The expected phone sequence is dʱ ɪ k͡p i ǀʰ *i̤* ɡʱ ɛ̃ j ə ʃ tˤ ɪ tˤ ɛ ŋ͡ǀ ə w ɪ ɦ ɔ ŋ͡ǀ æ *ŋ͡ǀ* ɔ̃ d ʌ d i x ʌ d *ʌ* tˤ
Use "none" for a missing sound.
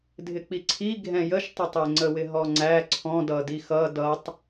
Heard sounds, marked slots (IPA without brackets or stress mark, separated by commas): i, ǀʰ, ʌ